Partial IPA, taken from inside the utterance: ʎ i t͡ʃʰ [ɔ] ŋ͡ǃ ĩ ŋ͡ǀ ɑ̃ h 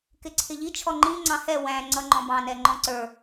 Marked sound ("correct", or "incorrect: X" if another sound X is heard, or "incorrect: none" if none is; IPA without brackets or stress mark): correct